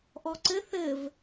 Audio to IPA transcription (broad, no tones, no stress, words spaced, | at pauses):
ʔɔǀɘ θɘv